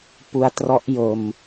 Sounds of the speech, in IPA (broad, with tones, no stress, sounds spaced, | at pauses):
p u˧ a̯ t r ɔ˦˥ ʔ j o˧ m